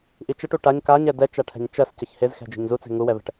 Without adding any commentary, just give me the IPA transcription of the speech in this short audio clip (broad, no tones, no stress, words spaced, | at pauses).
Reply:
ʔit͡ʃəʈu ʈaɲ kaɲɛ dɛt͡ʃaʈʰɛ̤ɲ t͡ʃɜs cəçhezxɛ̤ d͡ʒe̤ɲzut͡se̤ ŋuwɛvɛ̤ʈ